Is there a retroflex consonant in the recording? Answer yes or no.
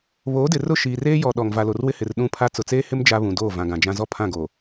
no